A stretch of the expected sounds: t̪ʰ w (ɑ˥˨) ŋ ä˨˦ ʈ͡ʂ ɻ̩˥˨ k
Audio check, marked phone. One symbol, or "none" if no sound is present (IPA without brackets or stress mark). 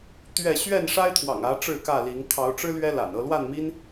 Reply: ɑ̰˨˩